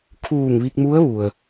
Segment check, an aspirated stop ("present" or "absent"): present